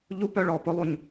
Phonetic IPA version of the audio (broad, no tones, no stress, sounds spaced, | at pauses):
ʎ u p œ ɭ ɔ p ʊ lˠ u ɲ